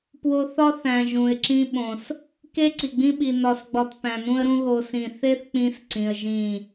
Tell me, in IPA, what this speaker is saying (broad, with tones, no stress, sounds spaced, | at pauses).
p w o˧ θ ɒ˦ θ æ̃˨ ʒ ũ˨ ɪ̯ ǁ ĩ˧ ɓ õ˨ s | k e˦ ǀ i˨ ɡ͡b ĩ˧ ɓ i˨ n ɒ˧ s ɡ͡b ɒ˧ t p æ̃˨ n ũ˧ ə̯ ɾ ũ˧ ɣ o˦ s ĩ˦˨ θ e˦ θ k͡p ĩ˧ s ǀ ĩ˧ ə̯ ʒ ĩ˦˨